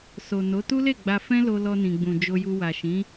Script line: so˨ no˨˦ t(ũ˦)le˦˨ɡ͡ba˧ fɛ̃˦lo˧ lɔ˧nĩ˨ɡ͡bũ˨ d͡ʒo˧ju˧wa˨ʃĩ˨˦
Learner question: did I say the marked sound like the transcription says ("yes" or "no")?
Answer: no